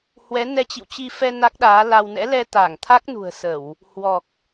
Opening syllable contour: rising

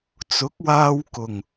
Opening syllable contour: rising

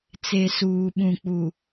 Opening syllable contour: low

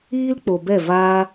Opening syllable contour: high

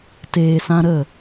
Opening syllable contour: low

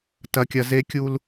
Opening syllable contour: high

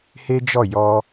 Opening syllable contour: high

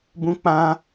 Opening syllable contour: high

